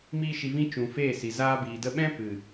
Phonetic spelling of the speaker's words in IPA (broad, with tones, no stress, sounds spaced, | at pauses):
m iː˦ ʃ i˧ v ĩ˦ t͡ʃ ũ˨ f eː˦˨ s i˨ z aː˧ b iː˨ d ə˧ ɓ ɛ̃˦ p ɨ˨